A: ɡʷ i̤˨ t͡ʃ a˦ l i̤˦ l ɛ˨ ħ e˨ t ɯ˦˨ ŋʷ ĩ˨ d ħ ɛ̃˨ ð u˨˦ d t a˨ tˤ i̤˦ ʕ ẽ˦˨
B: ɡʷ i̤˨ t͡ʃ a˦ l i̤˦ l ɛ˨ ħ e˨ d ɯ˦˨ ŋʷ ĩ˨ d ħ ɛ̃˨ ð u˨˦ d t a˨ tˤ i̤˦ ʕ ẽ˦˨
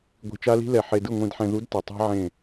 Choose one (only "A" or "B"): B